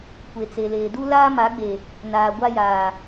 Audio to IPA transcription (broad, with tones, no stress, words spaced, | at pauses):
kʷe˨t͡se˨leː˨ du˦laː˦ma˨˦ɡ͡be˨ | naː˨ɡʷa˦jaː˨